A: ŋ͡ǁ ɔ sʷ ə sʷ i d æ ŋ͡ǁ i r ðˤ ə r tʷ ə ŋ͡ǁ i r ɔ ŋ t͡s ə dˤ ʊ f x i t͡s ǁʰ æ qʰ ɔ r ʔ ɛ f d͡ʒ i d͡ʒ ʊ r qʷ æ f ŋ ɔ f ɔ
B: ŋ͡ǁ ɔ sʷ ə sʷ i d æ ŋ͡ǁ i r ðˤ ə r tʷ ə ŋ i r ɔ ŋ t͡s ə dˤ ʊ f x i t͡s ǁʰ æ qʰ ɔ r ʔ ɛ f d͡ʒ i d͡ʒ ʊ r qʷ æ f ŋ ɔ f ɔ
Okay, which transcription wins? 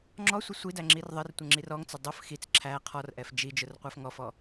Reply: A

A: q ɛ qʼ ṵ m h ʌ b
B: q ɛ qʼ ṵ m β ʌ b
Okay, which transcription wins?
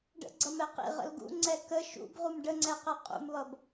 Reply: B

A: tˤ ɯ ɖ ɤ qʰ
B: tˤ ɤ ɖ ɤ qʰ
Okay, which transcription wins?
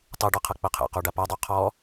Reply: A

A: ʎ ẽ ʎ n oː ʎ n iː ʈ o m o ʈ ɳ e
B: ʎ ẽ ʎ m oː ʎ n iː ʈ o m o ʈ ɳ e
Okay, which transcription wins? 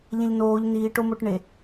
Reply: A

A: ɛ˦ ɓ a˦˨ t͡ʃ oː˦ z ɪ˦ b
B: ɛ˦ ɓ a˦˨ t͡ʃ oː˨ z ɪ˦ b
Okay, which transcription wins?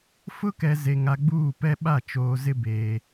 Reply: B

